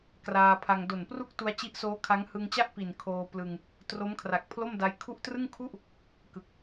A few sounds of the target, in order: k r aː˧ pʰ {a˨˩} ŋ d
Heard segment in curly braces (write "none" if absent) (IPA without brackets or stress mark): a˧